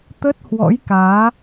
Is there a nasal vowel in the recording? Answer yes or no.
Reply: no